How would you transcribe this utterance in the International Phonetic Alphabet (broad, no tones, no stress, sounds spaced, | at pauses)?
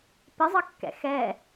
p ɪ zˤ ʌ kː ɛ̰ x ɛ